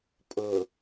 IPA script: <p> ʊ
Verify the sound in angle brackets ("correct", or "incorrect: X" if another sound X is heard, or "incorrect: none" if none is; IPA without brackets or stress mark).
incorrect: pʼ